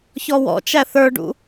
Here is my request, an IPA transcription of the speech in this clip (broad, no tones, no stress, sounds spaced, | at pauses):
ç ɔ w ɔ̰ t͡ʃ æ θ ə˞ ɖ ṵ